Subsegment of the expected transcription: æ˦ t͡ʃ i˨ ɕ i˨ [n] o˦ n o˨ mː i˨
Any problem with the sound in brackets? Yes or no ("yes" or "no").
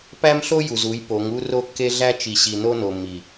no